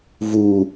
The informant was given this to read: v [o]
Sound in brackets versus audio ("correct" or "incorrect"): incorrect